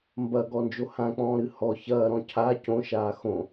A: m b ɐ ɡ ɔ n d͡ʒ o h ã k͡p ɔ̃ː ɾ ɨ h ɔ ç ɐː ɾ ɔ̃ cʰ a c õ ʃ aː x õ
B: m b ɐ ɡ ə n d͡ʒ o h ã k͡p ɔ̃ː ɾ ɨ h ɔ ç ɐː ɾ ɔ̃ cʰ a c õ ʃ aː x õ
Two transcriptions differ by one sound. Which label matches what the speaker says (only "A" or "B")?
A